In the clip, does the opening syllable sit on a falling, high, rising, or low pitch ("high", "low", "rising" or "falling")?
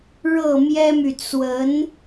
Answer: falling